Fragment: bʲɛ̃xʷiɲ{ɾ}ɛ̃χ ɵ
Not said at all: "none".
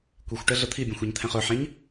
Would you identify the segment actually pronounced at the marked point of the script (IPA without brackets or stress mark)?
t̪ʰ